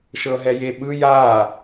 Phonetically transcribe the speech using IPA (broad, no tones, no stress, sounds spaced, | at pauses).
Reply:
ʃ ɤ ɦ ɛ j e ɓ ɯ j a